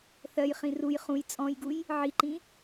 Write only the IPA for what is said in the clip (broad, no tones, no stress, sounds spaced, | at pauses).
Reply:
θ ɜ j χ ĩ r u j χ ũ j t͡sʼ ɔ̃ j ɡ u j | ʕ i ǃ ĩ